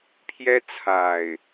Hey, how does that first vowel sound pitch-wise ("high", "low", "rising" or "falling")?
high